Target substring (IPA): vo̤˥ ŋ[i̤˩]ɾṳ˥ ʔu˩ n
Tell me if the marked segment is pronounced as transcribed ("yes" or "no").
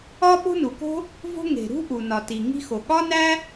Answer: no